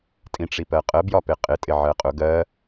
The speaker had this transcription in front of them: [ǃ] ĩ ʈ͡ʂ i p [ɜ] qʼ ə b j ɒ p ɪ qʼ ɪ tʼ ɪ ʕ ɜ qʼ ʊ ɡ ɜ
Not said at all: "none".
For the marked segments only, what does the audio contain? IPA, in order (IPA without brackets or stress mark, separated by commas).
tʼ, ɜ